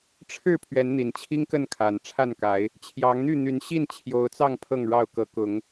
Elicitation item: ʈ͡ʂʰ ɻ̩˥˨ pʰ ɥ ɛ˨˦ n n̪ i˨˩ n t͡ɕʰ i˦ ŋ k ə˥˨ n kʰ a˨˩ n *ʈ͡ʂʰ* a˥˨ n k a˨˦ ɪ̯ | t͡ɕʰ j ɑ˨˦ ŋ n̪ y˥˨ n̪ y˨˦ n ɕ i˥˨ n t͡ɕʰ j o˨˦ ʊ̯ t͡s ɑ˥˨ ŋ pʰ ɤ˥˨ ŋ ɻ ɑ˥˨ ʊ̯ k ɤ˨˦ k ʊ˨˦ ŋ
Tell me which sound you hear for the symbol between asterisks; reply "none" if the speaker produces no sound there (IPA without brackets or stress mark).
ʈ͡ʂʰ